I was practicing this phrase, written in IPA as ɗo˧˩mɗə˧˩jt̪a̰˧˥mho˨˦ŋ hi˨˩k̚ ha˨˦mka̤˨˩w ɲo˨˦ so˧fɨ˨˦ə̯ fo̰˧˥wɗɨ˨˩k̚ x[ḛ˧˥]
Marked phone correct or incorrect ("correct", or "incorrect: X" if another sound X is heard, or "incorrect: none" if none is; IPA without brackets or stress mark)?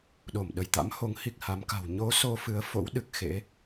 correct